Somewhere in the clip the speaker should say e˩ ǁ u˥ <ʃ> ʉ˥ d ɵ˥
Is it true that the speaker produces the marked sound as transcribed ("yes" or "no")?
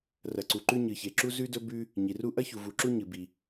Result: no